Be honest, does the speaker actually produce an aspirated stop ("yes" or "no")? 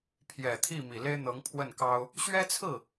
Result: yes